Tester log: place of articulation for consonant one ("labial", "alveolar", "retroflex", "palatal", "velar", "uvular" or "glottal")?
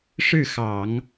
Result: retroflex